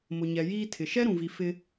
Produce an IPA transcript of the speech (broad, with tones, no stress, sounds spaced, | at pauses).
m ʊ˨ ɲ ɛ˨ j iː˦ tʰ ɪ˨ ʃ ɛ˦ ɾ ũ˨ v i˨ f ɪ˦